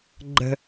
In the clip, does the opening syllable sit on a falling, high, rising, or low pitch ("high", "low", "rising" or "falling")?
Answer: high